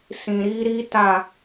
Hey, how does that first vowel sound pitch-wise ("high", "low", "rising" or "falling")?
low